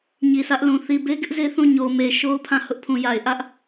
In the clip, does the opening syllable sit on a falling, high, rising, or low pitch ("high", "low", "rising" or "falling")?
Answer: low